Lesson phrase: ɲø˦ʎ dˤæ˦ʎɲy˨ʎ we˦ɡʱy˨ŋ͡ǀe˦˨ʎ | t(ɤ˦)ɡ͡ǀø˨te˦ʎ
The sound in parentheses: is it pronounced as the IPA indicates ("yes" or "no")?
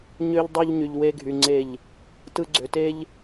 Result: no